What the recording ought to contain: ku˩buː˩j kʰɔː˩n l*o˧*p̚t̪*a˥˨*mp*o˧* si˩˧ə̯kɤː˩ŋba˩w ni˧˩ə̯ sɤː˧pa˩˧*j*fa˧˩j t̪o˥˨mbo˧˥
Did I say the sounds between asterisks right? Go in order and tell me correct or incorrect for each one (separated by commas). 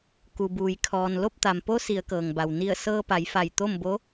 incorrect, incorrect, incorrect, correct